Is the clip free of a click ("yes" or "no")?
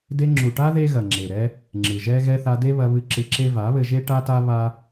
no